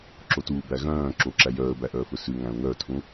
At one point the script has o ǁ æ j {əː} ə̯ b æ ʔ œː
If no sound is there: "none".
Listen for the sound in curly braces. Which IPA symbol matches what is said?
œː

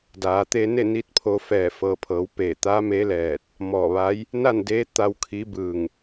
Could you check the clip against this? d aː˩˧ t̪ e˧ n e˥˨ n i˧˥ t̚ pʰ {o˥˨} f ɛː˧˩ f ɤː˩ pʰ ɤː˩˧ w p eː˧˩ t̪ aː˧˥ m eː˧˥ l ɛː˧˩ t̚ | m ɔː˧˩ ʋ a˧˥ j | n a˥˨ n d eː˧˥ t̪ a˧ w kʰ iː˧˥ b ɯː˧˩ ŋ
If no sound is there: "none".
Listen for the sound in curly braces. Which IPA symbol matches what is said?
o˧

